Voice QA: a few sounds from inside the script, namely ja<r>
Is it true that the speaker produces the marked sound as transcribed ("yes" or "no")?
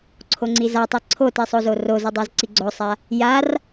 yes